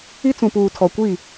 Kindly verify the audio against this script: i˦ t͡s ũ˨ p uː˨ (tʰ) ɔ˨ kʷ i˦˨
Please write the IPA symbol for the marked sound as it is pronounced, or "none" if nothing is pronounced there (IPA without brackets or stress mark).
tʰ